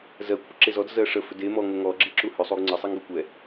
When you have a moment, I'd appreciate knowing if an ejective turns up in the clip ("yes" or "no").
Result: no